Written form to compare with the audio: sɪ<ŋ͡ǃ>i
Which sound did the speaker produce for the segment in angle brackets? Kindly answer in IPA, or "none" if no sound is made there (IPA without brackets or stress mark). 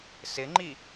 ŋ͡ǃ